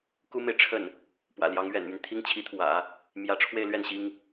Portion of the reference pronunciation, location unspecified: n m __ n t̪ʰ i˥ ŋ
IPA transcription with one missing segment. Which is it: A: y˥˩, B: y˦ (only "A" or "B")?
B